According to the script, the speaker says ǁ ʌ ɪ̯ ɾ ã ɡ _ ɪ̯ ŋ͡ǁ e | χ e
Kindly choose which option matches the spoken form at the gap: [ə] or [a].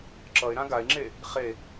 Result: a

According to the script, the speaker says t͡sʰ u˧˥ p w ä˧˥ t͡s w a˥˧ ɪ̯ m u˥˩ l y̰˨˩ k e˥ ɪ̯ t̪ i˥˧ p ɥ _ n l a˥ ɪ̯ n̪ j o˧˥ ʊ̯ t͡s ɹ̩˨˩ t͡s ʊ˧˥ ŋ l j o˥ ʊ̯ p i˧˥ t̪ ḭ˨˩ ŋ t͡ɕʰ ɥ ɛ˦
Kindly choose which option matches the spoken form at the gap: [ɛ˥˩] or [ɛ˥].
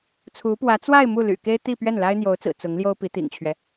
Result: ɛ˥˩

